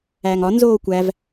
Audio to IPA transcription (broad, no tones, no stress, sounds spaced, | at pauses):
æː ŋ ɒ n z oː kʷ æ v